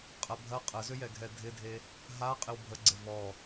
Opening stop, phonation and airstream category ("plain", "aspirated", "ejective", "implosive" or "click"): ejective